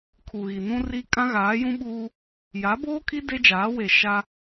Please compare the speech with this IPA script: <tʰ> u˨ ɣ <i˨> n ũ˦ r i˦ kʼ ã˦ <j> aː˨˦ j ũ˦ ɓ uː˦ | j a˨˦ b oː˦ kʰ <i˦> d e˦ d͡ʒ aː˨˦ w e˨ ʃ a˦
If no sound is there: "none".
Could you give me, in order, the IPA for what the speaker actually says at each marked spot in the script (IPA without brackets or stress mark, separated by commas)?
kʰ, i˨, ɣ, i˦